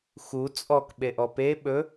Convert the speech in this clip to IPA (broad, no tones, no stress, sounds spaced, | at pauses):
x u t͡sʼ ɔ k ɓ e ʔ ɔ p e ɓ ɵ